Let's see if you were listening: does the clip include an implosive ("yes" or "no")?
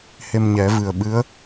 yes